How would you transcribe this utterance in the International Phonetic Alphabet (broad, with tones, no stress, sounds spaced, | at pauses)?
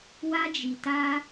w a˦ d͡ʒ i˧ t a˦